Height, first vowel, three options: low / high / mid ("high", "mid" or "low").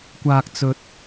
low